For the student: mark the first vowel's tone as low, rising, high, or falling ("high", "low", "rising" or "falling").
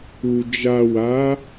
low